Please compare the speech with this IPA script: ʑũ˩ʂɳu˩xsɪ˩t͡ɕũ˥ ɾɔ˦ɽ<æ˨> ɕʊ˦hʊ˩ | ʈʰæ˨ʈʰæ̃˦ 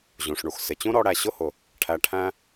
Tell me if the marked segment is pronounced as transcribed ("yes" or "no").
yes